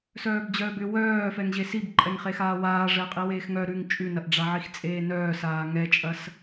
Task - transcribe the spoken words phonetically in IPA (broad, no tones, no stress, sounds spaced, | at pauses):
s œː b d͡ʑ œː b ʏ w œː f ɛ ŋ ʑ e s i b ǃʼ ɛ ŋ χ e x aː w aː ʐ ɛ qʼ i w eː x ŋ œ ɾ ʉ ŋ t͡ʃʼ ʉ n ɐ ʔ ɖ͡ʐ a ʕ i x t͡sʼ eː n œː s aː ŋ ɛ t͡ʃʼ ɐ s